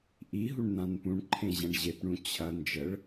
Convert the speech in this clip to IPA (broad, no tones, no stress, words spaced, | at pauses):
ʔiɦuɳ nãnpũɳǃʰẽ ʑɐ̃ɳʑepɳũ t͡ɕʰɐ nd͡ʒəɭ